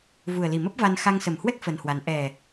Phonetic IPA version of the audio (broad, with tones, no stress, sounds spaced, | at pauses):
v u˨˩ ə̯ l i˨˩ m ə˦˥ p̚ v a˧ n x a˧ ŋ s ə˨˩ m h w ɛ˦˥ k̚ f ə˧ n h w a˨˦ n ʔ ɛ˨˩